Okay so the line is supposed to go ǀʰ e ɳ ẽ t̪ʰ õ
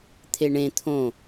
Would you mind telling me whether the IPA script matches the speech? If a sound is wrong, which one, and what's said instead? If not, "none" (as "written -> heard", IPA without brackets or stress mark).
ǀʰ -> t̪ʰ